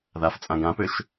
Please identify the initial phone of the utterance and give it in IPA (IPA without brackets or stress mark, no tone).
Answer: ð